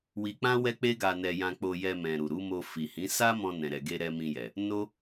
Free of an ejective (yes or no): yes